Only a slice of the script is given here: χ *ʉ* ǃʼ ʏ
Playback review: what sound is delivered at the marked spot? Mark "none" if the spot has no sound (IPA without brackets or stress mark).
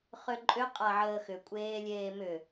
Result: ø